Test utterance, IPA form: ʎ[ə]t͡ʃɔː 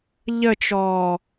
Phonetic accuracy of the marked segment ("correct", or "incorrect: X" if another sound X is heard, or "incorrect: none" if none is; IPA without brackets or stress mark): correct